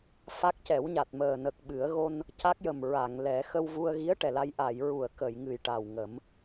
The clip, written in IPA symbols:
f a˦˥ k̚ c ɛ˨˩˦ w ɲ a˨˩ t̚ m əː˨˩ n ə˨˩ k̚ ɓ ɨ˨˩˦ ə̯ ɣ o˧ n | c a˦˥ k̚ j ə˨˩ m ɹ a˨˩˨ ŋ l ɛ˨˩˦ x ə˧ w v u˧ ə̯ ɣ i˧˥ ə̯ ʈ ɛ˨˩ l a˧ j ʔ a˨˩˨ j ɹ u˨˩˨ ə̯ k ə˨˩˨ j ŋ ɨ˨˩ j ʈ a˨˩ w ŋ ə˨˩˦ m

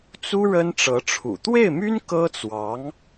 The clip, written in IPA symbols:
t͡s u˥ ɻ ə˥ n ʈ͡ʂ ɤ˧˥ ʈ͡ʂʰ ṵ˨˩ t̪ w e˥˩ ɪ̯ m y˥ n k ɤ˥ t͡s w ɑ˧˥ ŋ

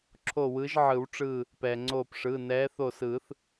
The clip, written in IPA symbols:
ǁʰ o˧˩ w ɯ˨˦ ʒ ʕ ɯ˨˩˦ w ʈ͡ʂ ɯː˧˩ | p ɛː˩ ŋ͡ǀ oː˧˩ p ʂ ɯː˩˧˩ n ɛː˨˦ θ o˧˩ s ɯː˨˩˦ θ

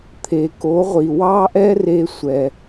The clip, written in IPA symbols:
t̪ʰ e˩ k o˩˥ ʁʷ i˩ w ɑ˥ ʔ ɛ˥ r e˧ sʷ ɛ˩

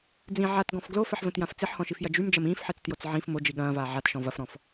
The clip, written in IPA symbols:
d͡z ĩ ʕ a t ɡ ɔ̃ f ɡ l o f ɐ ħ v ə̃ t j ã f t͡s i ħ h ɔ̃ ʃ i f j ɐ d͡ʒ y m d͡ʒ ɐ m ĩː f ħ e t͡s t j o t͡s ʕ ĩ f m o d͡ʒ i ɠ ɐ̃ː v aː ʕ a t ʃ ɔ̃ v ɐ f ɾ ɔ̃ f

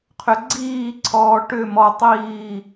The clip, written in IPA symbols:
qʰ ʏ ɡ͡ǀ iː ǀʰ ɔː ʈ ʏ m ɔ tˤ iː

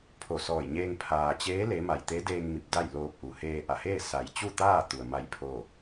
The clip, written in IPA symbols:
pʰ o˧˩ s ɔː˧˩ j ɲ eː˧ ŋ pʰ aː˩ t͡ɕ eː˧˥ l e˧˥ m a˧˩ j t̪ e˧˥ d eː˧ ŋ m i˧˩ p̚ d a˥˨ j l oː˧ p̚ ʔ u˩ h eː˧ ʔ a˧˩ h eː˥˨ s a˩˧ j t͡ɕ u˥˨ t̪ aː˥˨ t̪ u˩ ə̯ m a˥˨ j pʰ oː˥˨

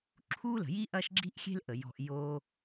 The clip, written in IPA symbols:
ǁʰ u˦ l ə̤˨ j i˦ ʔ ɐ˦ ʃ ɡ͡ǁ i˦ ʔ xʲ e̤˦ l ʔ ə˨ j ɔ̤˧ ʔ j o˦

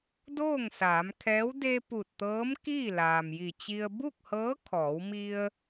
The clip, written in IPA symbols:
d oː˥˨ ŋ s aː˩˧ m kʰ ɛː˧˥ w d e˧ p u˧˩ t̚ t̪ ɤː˧˥ m k iː˥˨ l aː˩ m j i˧˩ t͡ɕ i˧ ə̯ b u˥˨ k̚ h ɤː˧˥ kʰ ɔː˩˧ w m i˧ ə̯

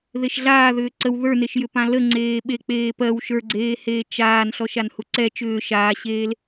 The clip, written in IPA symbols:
ð e ʃ ɮ aː ð ʏː ǀ ə w ð ə˞ n e ʃ j ʏ p ã l ə ŋ͡ǀ eː ɓ e k͡p eː p ɜ w ʃ ə˞ ɡ͡ǀ eː h eː t͡ʃ aː n ɬ ɔ ʃ a n h u ǀ ɛ t͡ʃ ʏː ʃ aː ɕ eː l

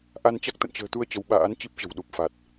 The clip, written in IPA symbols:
ʔ a˧ n t͡ɕ a˦˥ k̚ t̪ ə̰˧˨ n t͡ɕ ə̤ː˨˩ t̪ u˧ ə̯ t͡ɕ ə˨˦ w ɓ a̰ː˧˥ n t͡ɕ i˦˥ p̚ t͡ɕ ə̤˨˩ w ɗ u˨˩ p̚ f a˨˩ t̚

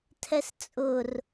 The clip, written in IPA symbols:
tʰ ɛ s t͡sʼ ʊ r

